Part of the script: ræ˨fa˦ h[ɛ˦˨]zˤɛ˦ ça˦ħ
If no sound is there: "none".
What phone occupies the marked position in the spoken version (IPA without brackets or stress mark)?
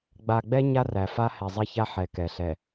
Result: ɛ˨